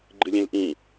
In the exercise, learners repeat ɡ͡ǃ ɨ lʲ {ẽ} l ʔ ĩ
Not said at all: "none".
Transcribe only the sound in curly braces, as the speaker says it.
ẽ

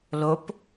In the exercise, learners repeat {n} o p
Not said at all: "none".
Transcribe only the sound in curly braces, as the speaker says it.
l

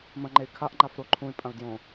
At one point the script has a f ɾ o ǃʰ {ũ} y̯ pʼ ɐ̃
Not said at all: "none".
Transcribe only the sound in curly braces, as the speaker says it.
ũ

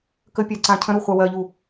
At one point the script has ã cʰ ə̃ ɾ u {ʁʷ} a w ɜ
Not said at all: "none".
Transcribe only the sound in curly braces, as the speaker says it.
χʷ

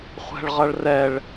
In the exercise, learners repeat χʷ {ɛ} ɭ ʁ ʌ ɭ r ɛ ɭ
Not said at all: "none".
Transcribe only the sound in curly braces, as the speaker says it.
ɛ̤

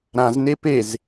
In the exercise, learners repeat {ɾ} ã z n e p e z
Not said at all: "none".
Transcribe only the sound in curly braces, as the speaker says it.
ɾ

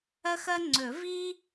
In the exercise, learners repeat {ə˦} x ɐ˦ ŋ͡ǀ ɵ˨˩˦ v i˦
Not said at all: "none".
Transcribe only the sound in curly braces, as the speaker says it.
ɐ˦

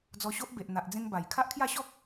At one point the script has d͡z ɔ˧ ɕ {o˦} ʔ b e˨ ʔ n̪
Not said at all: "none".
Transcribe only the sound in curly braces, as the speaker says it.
o˦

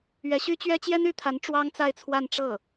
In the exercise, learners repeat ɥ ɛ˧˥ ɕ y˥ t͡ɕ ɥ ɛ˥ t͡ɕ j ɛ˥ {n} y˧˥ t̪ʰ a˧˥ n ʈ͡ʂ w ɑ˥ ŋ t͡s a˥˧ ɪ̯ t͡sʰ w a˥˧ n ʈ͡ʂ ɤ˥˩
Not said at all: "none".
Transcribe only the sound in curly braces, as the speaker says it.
n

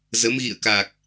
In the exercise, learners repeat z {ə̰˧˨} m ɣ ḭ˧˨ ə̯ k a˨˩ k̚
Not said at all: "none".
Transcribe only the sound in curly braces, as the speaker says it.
ə˨˦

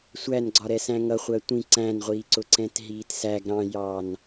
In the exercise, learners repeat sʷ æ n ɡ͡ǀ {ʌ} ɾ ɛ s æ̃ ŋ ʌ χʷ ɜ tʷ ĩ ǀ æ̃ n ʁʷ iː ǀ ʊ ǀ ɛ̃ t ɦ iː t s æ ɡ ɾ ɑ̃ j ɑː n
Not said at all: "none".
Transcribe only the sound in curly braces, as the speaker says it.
ɒ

